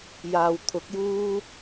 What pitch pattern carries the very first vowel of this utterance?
low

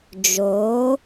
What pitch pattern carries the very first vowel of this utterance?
rising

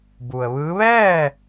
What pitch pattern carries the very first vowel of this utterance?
low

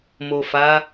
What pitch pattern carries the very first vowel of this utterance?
low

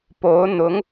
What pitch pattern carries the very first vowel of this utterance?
rising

